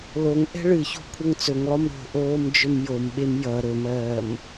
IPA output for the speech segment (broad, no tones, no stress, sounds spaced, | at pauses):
l o ŋ ʔ ɛ̤ ɭ ɨ ç o̤ kʷʰ ʌ ŋ t͡s ɵ ŋ lˠ o m ɾ o̤ ʔ oː m d͡ʒ ɵ m j o m ɓ e m j ʌ ɾ ɵ m ɜː m